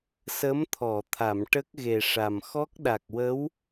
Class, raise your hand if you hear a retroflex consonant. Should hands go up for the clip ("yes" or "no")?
yes